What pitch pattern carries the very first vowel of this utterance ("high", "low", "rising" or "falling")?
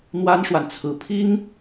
high